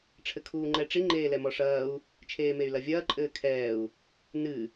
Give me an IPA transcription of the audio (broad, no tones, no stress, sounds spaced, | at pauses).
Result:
ʈ͡ʂʰ ɘ kʰ uː ŋ͡ǃ ɛ ʈ͡ʂ i ŋ͡ǃ eː l ɛ m ɔ ʂ ɐː u̯ | t͡ʃʰ eː m e y̯ l ɐ vʲ ɐː ǃʼ ɘː kʰ ɛː u̯ | n ɨ